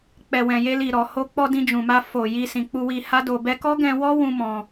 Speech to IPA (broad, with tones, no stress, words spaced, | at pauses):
k͡pɛ˨wɛ̃˨je˧li˨ ɾɔ˨ ho˧k͡pɔ˧ dĩ˧d͡ʒũ˨ma˧ fo˨ ji˧sĩ˨k͡pu˧wi˧ ha˦do˧ bɛ˧kɔ˦ɡɛ̃˧wɔ˦ wũ˦ mɔ̃˧